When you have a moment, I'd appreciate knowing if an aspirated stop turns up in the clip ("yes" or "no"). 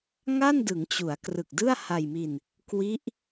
no